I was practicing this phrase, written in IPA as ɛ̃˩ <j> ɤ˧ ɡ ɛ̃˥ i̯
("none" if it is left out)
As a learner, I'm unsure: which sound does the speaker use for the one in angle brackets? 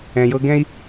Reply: j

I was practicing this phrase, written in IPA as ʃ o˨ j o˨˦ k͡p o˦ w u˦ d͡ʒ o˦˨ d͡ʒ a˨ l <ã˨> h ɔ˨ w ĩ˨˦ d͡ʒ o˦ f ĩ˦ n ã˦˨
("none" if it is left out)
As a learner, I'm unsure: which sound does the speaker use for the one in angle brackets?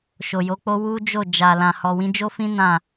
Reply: ã˨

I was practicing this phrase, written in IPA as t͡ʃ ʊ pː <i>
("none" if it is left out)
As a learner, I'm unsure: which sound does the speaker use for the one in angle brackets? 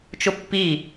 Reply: i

